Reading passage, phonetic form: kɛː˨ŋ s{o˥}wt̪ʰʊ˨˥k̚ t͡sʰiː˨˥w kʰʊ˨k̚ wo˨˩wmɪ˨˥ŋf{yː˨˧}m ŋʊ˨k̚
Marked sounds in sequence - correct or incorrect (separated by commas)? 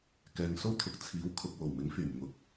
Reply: correct, incorrect